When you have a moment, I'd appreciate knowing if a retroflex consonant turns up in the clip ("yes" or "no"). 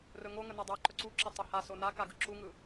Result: no